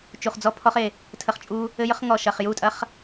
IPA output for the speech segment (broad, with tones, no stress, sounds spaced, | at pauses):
t͡ʃ u˨ χ d͡z ɔ˦ pʰ ɔ˦ χ e˨ | tʰ ə˨ χ t͡ʃʼ u˦ | ɘ˦ j ə˦ χ ŋ ɔ˨ ʃ ɐ˨ χ j u˦˨ tʼ ɐ˦ χ